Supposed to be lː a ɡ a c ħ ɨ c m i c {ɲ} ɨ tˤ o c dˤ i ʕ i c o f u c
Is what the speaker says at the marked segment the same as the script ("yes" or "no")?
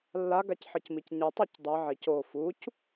yes